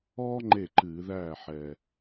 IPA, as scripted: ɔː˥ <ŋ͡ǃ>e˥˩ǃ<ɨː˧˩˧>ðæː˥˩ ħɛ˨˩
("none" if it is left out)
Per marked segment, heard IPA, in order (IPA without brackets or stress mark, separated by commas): ŋ͡ǃ, ɨː˧˩˧